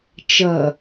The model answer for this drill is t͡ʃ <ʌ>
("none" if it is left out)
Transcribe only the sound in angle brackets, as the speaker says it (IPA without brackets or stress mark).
ʌ